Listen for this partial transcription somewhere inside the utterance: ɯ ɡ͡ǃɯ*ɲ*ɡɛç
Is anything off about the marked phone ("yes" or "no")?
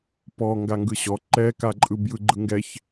yes